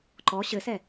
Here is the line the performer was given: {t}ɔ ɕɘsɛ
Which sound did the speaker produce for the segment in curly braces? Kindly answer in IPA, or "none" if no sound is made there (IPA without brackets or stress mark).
ǃ